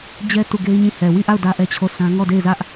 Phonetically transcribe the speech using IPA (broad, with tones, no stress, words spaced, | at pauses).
d͡ʑɛ˦ tu˦˨ɡe˦ɪ̯ɲĩ˦˨ hɛ˨wi˦˨ʔa˦˨ʊ̯ dä˦ʔɛ˦t͡ɕʰo˦˨sã˦ ŋɔ˦˨de˦˨ɪ̯zä˦ʔ